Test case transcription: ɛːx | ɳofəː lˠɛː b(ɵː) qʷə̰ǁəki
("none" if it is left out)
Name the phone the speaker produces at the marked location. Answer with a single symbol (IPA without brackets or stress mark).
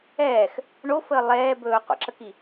ɵː